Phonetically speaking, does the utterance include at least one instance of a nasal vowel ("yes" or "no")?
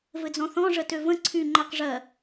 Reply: yes